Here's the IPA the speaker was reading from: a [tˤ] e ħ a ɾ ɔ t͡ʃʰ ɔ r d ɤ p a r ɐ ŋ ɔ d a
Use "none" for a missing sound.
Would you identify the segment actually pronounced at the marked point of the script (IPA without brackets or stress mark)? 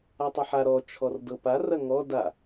tˤ